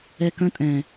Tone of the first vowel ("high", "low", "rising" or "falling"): high